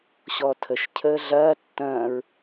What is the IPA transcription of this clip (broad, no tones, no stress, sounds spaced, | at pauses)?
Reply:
ɕ ɔ tʰ ə ʃ cʰ əː ɮ ɐː tː ɐ̃ː ɹ